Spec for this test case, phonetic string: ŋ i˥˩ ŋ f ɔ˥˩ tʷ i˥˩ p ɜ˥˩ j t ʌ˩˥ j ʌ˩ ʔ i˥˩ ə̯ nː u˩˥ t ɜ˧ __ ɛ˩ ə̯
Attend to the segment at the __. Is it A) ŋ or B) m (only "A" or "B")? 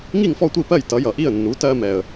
B